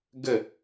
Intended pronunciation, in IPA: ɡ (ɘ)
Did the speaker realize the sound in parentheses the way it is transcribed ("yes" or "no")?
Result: yes